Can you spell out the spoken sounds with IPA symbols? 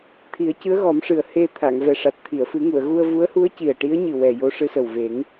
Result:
t̪ʰ i˨˩˦ ə̯ c ɨ˧˥ ə̯ ɣ ɔ˨˩˦ m ʂ ɨ˨˩ ə̯ h e˧ t̪ʰ a˨˩˨ ŋ v ɛ˨˩ ʂ a˨˩ t̚ t̪ʰ i˨˩˨ ə̯ f ɨ˨˩˦ ŋ u˨˩˨ ə̯ ɣ u˧ ə̯ v u˧˥ ə̯ h u˧˥ ə̯ c i˨˩ ə̯ ʈ i˧˥ ə̯ ɲ ɨ˨˩ w ɛ˨˩ j o˧ ʂ ɨ˧ s ə˨˩ w v e˨˩˦ ŋ

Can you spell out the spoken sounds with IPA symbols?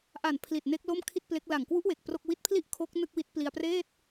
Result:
ʔ a˨˩ n pʰ l i˨˩ t̚ n e˦˥ k̚ l o˥˩ m kʰ i˥˩ t̚ p l e˦˥ k̚ l a˨˩ ŋ k w u˦˥ ʔ w e˨˩ k̚ p r o˥˩ k̚ w i˦˥ t̚ pʰ l i˥˩ ʔ kʰ o˦˥ k̚ n ɯ˥˩ k̚ w i˦˥ t̚ p l i˧ a̯ p r eː˥˩ t̚

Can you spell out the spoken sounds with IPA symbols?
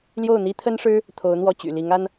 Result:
l j o˥˩ ʊ̯ n̪ i˥ t̪ʰ ə˥ n ʂ ɻ̩˥ | t̪ʰ o˧˥ ʊ̯ n̪ w ɔ˥˩ t͡ɕ y̰˨˩ l i˧˥ ŋ a˥ n

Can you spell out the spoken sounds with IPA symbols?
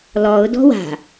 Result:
l ɔ ʊ̯ d ɔ̤ w a̤

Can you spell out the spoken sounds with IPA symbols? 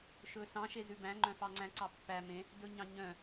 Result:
ʃ ɵ s ɑ̃ ʃ e z ʉ b æ̃ ŋ͡ǃ œ̃ f ɑ ŋ͡ǀ æ̃ ǀ ɑ pː æ m ẽ | d ɵ ɲ ɑ̃ ɲ œ̃

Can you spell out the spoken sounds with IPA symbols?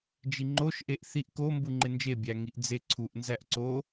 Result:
d͡ʒ i ŋ͡ǃ o ʃ ʔ e ʔ θ i ʔ k o m b u ŋ͡ǃ e n d͡ʒ e bʲ æ ŋ i ʔ d͡z e ǀʰ u ʔ n z æ ʔ ǀ o

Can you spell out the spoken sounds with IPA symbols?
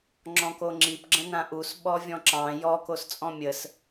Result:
ŋ͡ǁ ɔ̃ k o ŋ͡ǁ i p ɡ͡ǁ ə̃ n ã ʔ u s ɓ ɔ vʲ ɔ̃ ǁ ɑ̃ j ɔ k o s t͡sʼ ɔ̃ mʲ ə s

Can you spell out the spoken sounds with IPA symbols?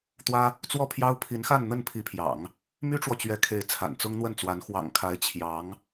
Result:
t̪ w ä˥ | t͡s w ɔ˥˩ pʰ j ɑ˥ ʊ̯ pʰ i˧˥ n x a˥˧ n n̪ ə˥˩ n pʰ i˧˥ pʰ j ɑ̰˨˩˦ ŋ | m y˥ ʈ͡ʂ w ɔ˨ t͡ɕ ɥ ɛ˧˥ kʰ e˧˥ ɪ̯ t͡sʰ a̰˨˩ n t͡s ʊ˥ ŋ n̪ w ə˥˩ n t͡s w a˧˥ n x w ɑ̰˨˩ ŋ kʰ a˧˥ ɪ̯ t͡ɕʰ j ɑ˧˥ ŋ

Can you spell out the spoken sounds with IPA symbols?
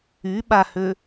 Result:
y ɓ a h ø

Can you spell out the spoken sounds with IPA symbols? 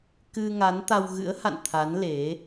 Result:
k ɨ˧ ŋ a˨˦ n t̪ a˧ w ɣ ɨ̰˧˥ ə̯ h a̰˧˨ n t̪ʰ a˨˦ n l e˨˦

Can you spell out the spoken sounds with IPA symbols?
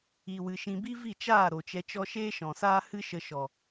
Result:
i˨ w ɨ˨ ʃ ĩ˨ b i˦ v i˦˨ t͡ʃ aː˦˨ ɾ o˨ t͡ʃ ɛ˧ t͡ʃ ɔ˦ ʃ eː˦ ʃ ɔ̃˨ s aː˦ h ɨ˦ ʃ ə˧ ʃ ɔ˨

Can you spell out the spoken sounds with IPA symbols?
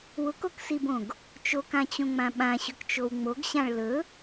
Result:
w ʊ k o k s i b õ ɡ | t͡ʃ o k ã t͡ɕ õ ŋ͡m ã ɓ ã ɕ ɵ k t͡ʃ o w ŋ͡m o ɡ ɕ ã ɭ l ɵ

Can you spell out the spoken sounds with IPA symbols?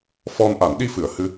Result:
f ɔ˧ n ʔ a˨˩˦ n ɗ i˧ f ɨ˨˩˨ ə̯ h ɨ˧

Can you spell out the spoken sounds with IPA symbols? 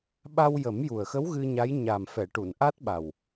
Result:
ɓ a˧ w j ə˨˩˦ m j u˨˩ ə̯ x ə˧˥ w ɣ ɨ˧ ɲ a˧˥ j ɲ a˨˩ m f ɛ˨˩˨ ʈ u˨˩˨ n ʔ a˦˥ t̚ ɓ a˨˩ w

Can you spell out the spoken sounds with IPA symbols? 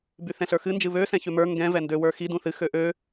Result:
b y θ ɛ̃ ɬ ə˞ x ɨ n d͡ʒ ɨ β ø s ɛ̃ ç ø m ə˞ ŋ ɡ ɛ̃ v ɛ n d ø w ə˞ x i d ũ θ ɨ x ø ʔ ø

